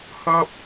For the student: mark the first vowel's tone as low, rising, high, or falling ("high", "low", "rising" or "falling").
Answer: high